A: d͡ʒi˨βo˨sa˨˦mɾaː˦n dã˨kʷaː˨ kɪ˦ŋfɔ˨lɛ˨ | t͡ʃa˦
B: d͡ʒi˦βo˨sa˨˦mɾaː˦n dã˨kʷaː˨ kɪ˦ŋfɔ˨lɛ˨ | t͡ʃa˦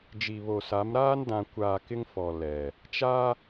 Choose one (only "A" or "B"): A